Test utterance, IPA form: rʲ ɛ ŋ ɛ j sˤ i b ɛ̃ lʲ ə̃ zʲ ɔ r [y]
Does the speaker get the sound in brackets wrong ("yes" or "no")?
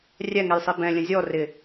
yes